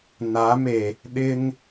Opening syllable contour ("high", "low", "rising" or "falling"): rising